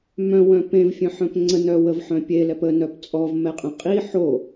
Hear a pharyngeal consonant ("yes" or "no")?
yes